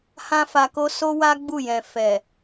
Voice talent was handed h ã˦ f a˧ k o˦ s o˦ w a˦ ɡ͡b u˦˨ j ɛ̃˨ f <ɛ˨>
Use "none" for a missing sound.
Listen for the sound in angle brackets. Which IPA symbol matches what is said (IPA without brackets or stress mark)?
ɛ˨